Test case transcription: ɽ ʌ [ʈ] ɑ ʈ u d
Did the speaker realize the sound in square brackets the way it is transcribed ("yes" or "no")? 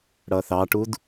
no